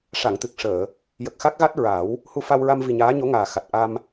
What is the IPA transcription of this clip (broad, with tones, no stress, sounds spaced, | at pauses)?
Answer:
ʂ a˨˩˨ ŋ t̪ ɨ˨˩ k̚ ʂ əː˨˩˨ | j ə˨˩ k̚ x a˦˥ k̚ ɣ a˦˥ t̚ ɹ a˨˩˦ w | h u˧ f a˧ w ɹ a˧ m v i˨˩ ɲ aː˧˥ ɲ o˧˥ ŋ aː˨˩ x a˨˩ t̚ ʔ a˧ m